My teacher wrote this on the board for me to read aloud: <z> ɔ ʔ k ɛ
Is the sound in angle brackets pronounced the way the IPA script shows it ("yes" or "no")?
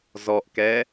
yes